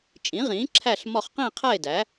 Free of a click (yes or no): no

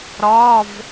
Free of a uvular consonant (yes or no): yes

